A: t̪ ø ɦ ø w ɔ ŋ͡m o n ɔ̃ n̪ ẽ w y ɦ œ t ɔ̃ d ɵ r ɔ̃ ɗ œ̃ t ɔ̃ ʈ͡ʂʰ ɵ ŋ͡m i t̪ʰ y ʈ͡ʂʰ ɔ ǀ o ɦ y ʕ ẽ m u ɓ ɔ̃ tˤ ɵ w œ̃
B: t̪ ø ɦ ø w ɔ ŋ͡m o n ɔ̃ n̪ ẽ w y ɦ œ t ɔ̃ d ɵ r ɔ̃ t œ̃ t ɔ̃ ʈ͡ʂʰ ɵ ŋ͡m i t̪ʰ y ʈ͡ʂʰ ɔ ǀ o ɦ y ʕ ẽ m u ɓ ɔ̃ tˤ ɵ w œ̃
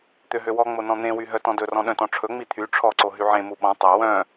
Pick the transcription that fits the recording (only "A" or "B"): A